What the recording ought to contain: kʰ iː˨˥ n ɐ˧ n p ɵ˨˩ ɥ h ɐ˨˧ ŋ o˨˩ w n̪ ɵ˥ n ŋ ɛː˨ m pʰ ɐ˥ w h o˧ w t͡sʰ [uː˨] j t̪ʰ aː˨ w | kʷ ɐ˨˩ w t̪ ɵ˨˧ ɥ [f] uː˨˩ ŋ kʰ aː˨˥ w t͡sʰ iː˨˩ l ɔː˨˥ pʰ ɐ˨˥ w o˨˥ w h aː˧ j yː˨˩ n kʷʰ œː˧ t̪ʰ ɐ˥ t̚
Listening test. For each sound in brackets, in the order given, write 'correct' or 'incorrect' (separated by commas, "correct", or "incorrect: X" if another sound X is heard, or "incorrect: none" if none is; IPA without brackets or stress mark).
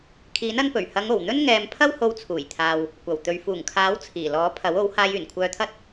incorrect: uː˨˩, correct